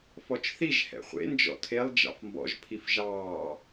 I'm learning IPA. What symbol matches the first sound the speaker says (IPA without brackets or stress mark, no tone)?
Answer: f